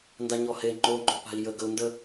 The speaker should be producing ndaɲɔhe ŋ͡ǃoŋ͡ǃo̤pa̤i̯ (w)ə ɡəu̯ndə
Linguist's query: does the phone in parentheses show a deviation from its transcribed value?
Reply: yes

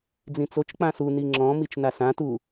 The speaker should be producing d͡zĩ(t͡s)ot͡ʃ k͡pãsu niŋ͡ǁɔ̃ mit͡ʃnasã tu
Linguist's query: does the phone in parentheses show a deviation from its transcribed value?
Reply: no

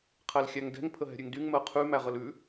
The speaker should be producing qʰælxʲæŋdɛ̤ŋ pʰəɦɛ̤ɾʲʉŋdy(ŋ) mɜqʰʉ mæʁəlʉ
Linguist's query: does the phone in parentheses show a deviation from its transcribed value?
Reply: no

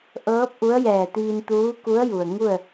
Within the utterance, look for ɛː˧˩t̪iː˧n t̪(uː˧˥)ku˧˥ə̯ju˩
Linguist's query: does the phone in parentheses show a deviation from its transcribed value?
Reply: no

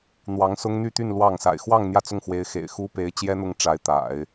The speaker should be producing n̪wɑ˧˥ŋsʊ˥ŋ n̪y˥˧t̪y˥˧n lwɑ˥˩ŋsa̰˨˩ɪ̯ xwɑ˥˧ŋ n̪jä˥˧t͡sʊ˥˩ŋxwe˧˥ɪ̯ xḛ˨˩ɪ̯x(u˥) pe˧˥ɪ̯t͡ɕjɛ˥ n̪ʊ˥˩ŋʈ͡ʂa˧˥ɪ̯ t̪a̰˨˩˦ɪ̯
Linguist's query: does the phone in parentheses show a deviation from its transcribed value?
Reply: no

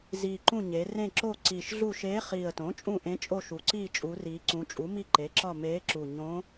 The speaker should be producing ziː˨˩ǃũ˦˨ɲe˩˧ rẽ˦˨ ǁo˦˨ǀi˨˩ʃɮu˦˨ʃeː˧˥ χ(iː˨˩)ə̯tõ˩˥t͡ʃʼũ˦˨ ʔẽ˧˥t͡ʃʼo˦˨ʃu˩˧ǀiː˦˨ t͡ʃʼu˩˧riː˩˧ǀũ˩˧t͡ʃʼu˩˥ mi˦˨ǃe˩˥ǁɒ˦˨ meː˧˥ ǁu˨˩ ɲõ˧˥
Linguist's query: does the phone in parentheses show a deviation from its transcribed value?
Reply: no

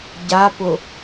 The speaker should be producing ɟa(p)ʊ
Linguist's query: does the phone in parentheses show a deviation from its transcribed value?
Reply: no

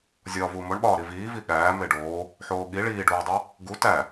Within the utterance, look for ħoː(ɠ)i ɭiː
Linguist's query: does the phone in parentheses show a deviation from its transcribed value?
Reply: no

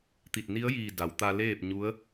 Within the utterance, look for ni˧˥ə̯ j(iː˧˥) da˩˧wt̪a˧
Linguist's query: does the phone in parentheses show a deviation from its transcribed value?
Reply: yes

